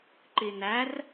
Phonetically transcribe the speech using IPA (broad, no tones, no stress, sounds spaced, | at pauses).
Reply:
ǃ i n æ r